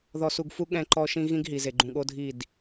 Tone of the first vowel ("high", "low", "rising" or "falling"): low